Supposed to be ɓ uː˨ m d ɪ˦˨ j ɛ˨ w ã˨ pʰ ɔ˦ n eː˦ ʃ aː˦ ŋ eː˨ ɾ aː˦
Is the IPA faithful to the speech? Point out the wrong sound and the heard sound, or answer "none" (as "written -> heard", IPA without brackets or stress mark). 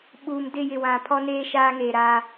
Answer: ɛ˨ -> ɪ˨